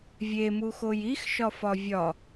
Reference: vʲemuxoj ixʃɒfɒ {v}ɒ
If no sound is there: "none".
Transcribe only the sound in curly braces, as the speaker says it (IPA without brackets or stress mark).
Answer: vʲ